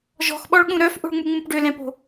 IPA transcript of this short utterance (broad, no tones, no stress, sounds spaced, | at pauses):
ʒ ɔ̤ x ɓ ɔ ɭ ɠ ũ ɾ œ f ʔ o̤ ɭ ŋ͡m u ŋ͡m ũ p ɖ ø l ɛ̃ p o̤